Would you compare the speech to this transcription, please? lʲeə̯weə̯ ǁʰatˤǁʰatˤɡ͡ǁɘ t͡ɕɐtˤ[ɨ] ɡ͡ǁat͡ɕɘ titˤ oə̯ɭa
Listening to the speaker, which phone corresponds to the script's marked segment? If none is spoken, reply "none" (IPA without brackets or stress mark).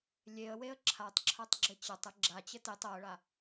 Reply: ɨ